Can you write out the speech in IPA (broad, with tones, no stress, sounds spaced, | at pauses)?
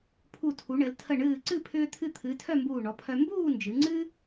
pʰ u˧˩ tʰ u˩˧ ɳ ɘ˩˧ l tʰ ə˧˩ ɳ ɨː˧˩ ǀ ɨ˥˧ pʰ ʏː˧ t̪ʰ ɨ˧ t̪ʰ ɨ˩˧ tʰ œ˥˧ m b uː˧˩ ɳ ɔ˩˧ pʰ œ˧ m b uː˥˧ n d͡ʒ ɨ˩˧ ŋ͡ǀ ɨ˥